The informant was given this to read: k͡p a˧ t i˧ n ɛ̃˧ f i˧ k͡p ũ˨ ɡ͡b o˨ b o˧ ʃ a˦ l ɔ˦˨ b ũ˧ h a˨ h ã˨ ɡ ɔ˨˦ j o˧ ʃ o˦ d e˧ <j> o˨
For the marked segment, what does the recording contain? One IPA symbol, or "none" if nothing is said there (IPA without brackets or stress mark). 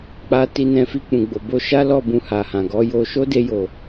j